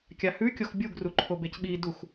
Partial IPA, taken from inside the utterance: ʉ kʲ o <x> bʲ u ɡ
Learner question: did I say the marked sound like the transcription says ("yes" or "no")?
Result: yes